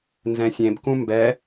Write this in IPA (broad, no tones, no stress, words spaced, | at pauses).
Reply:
nzɛ̃sʲẽb kũmbɛ